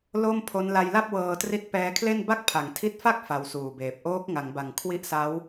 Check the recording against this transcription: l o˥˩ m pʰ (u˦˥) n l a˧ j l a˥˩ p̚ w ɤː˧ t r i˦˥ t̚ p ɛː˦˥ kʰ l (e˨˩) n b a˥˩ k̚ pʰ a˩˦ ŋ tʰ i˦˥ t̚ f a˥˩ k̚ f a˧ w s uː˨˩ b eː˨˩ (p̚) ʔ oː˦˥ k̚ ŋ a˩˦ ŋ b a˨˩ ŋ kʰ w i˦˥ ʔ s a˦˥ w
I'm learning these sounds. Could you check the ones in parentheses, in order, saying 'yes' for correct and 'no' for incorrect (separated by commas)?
no, no, yes